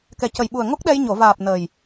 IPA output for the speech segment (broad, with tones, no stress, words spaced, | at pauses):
kɛ˨˩cə˨˩jɓu˨˩ə̯ ŋo˦˥k̚ɗɛ˧j ɲo˨˩˨vaː˨˩p̚ nəː˨˩j